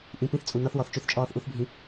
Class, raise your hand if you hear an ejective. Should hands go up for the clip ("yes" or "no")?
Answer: yes